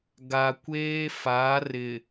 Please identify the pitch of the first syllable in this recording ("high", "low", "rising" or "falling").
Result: low